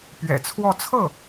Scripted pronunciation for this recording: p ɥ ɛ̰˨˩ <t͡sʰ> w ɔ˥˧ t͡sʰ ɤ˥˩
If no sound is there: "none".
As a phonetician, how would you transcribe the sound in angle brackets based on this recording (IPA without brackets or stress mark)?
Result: t͡sʰ